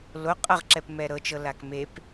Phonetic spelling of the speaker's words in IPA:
l o qʼ ʌ ʁ ǁ ɛ p m ɛ ɾ ɤ t͡ʃ ɤ l a k m e p

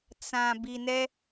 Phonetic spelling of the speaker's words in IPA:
t͡s ã˨ b i˨ n ɛ˦

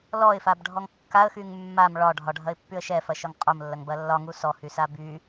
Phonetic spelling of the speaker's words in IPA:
l ɔ ɪ̯ f a b ɖʱ ɔ ŋ kː a ə̯ x y ŋ mː a m ɭ ɒ ɖʱ ɒ ɖʱ ɐ ɪ̯ pː y ə̯ ʃ ɛ f ɐ ʃ ɒ ŋ qʼ o m lː ɐ ŋ b ɐ lː ɒ ŋ u s ɔ h y s a b y

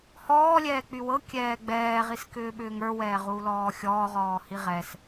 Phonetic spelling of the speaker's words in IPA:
h ɔː lʲ ɛː k͡p y w ɤ kʲ ɛː ɡ͡b ɛː ʁ i s k ʏː ɓ ʏː ŋ ə˞ w ɛː ʁ u l ɔː xʲ ɔː ʁ ɔː h i ʁ ɛ s

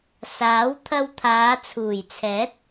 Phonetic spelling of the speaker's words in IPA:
s aː˨˥ w t̪ʰ ɐ˧ w t̪ʰ aː˨˧ t͡sʰ uː˨˩ j t͡sʰ ɛː˨˥ t̚

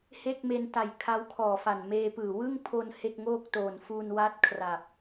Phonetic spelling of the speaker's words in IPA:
h e˥˩ k̚ m e˧ n t a˨˩ j kʰ a˦˥ w kʰ ɔː˨˩ f a˨˩ n m eː˧ p ɯː˨˩ w ɯ˥˩ ŋ pʰ o˧ n h e˥˩ k̚ ŋ oː˥˩ k̚ t oː˨˩ n f uː˧ n w a˦˥ t̚ kʰ r a˨˩ p̚

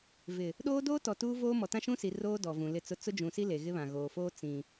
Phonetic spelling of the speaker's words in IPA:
v ɪ˨ | ɗ oː˦ d oː˦ t ɔ˨ t uː˦ v oː˦ m ɔ˨ t ã˦ ʃ ũ˦ s i˨ r oː˦ d ɔ˨ v ũ˨ l ɪ˦˨ t͡s ʊ˦ t͡s ʊ˦ d͡ʒ ũ˨ s i˦ l e˨ ɣ ɪ˦ β ã˨ ɣ oː˨ f oː˦ t͡s ĩ˨

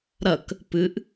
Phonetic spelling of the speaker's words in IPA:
ɾ ɐ k | p ɨ ʔ

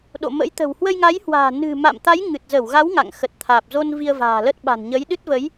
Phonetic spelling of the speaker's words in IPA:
ɗ o̰˧˨ m ə̰˧˥ j t̪ ə̤˨˩ w h w ə˧ j ŋ a˨˦ j h w a̤ː˨˩ n ɨ̤˨˩ m a̰˧˨ m t̪ a˨˦ j ŋ ɨ˨˩ t̚ z ə˧˩ w ɣ a˨˦ w ŋ a̰˧˨ ŋ x ə˨˩ t̚ t̪ʰ aː˨˩ p̚ z o˧ n v i˧ ə̯ v a̤ː˨˩ l ə˦˥ t̚ ɓ a̤˨˩ n ɲ ə˨˦ j ɗ ɨ˦˥ t̚ v ə˨˦ j

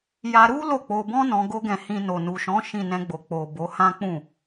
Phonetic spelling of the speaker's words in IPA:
j a˧ ɾ u˦ l o˦˨ k͡p o˧ b ɔ̃˦ n ɔ̃˧ ɡ o˦ ɡ ɛ̃˧ h ĩ˧ n o˨ n u˨ ʃ ɔ̃˨˦ ʃ ĩ˦˨ n ɛ̃˧ ɡ͡b o˨ k͡p o˨ b o˨˦ h ã˦ k͡p ũ˦˨

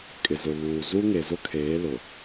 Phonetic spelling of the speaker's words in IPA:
kʼ ɪ˨ z ʊ˨ β uː˨ z u˦ ŋ e˨ z ʊ˦ kʰ eː˨˦ l ʊ˨

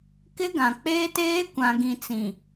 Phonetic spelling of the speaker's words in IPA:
k ɪ˦ ɡ ã˨ k͡p eː˦ t eː˦ kʷ ã˨ ɡ ĩ˨ t͡s ĩ˨

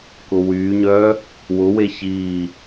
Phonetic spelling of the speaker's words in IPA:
k ʊ w yː ɲ œː | w ʊ w e ç iː

